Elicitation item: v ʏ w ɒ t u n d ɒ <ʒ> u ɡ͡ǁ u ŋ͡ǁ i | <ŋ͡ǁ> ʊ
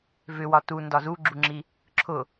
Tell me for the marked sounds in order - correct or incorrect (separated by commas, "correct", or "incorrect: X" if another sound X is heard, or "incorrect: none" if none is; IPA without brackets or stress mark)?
incorrect: z, incorrect: ǁʰ